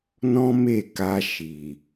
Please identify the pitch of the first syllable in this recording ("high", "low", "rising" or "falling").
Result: high